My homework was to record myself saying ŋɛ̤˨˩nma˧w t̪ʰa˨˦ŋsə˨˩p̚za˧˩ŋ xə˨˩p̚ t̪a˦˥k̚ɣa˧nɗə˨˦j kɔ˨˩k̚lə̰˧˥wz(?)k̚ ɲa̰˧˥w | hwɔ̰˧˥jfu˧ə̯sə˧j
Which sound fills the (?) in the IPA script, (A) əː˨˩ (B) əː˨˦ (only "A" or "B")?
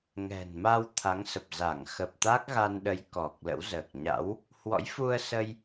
A